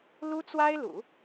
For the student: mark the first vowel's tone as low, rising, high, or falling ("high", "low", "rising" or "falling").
high